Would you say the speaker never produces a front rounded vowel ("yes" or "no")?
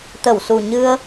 yes